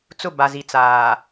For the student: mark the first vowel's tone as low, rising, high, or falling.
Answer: falling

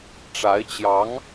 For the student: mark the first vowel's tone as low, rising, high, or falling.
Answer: rising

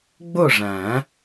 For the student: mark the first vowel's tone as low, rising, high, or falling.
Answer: falling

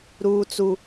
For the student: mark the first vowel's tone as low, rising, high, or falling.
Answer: high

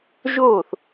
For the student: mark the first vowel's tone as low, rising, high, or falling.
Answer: falling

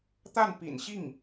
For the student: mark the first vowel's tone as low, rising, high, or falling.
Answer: falling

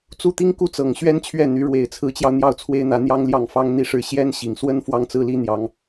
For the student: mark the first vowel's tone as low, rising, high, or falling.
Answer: falling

